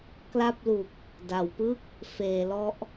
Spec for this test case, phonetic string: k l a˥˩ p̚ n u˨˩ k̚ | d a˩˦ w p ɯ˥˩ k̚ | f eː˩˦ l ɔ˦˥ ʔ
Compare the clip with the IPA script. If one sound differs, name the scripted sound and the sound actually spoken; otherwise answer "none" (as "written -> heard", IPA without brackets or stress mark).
n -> l